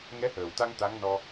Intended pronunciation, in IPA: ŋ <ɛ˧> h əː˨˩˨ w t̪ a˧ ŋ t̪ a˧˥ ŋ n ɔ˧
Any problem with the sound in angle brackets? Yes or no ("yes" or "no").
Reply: yes